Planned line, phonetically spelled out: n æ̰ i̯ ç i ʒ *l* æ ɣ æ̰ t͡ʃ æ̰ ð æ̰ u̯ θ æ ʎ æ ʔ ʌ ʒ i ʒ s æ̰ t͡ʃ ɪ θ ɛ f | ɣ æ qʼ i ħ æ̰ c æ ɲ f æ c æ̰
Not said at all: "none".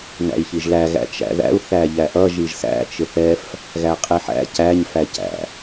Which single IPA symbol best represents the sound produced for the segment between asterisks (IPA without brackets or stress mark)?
l